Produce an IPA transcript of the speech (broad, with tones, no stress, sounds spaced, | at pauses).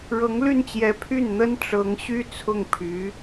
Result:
ɻ ɤ˧˥ ŋ l y˥˩ n t͡ɕ j ɛ˧˥ pʰ y˥˩ n n̪ ə˥ n ʈ͡ʂ ɤ˧˥ ŋ ɕ y˥ t͡sʰ ʊ˥˩ ŋ pʰ y˧˥